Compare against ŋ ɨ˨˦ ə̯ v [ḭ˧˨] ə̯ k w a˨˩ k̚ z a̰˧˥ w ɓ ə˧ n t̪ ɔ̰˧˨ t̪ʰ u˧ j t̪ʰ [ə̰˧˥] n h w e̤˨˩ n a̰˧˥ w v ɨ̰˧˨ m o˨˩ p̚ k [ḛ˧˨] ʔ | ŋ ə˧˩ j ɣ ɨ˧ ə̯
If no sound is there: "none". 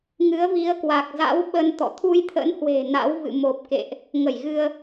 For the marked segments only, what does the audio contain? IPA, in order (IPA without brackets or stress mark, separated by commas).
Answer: i˨˦, ə̰˧˥, ḛ˧˨